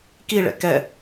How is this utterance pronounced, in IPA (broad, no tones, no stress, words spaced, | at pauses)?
kiɭɛ̰ kɛ